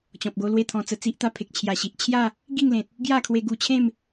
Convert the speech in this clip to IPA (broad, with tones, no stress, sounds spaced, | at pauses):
t͡ɕ ɔ̃˨ p̚ ɡ o˧ l w e˥˧ t̪ʰ ɔ̃˧ t͡s ə˧ t͡s i˦ ʔ t̪ a˥˧ pʰ e˨ k̚ t͡ɕʰ j a˨˩ ɕ i˨ ʔ t͡ɕʰ j a˥˧ | ɡ i˥˧ ŋ l ẽ˨ t̚ | ɡ j a˥˧ kʰ w e˧ ɡ u˧ t͡ɕʰ ẽ˥˧ m